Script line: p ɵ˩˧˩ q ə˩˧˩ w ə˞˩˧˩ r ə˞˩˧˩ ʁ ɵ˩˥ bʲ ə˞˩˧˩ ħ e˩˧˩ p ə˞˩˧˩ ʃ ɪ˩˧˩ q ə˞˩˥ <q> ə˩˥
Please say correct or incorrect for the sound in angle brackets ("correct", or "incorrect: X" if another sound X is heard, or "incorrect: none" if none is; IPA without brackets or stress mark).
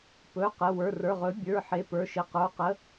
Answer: correct